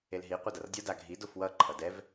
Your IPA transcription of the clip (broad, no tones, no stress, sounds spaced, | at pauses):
e l ɦ i qʷ ɛ d ʌ r dʲ ʌ d a ɡʱ i d o f w ʌ ǃʰ ʌ d ɛ v